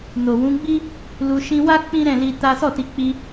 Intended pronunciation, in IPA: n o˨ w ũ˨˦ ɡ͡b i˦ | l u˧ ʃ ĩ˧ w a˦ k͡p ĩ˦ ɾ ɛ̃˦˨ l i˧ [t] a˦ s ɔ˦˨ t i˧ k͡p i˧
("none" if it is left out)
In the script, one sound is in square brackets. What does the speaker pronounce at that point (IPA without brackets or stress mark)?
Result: t